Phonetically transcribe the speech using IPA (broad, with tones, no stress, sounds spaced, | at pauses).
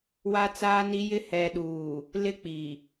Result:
w a˦ t͡s aː˦ n i˦ j ɪ˦ h ɛ˨ ɗ uː˨ | l ɪ˦ k͡p i˨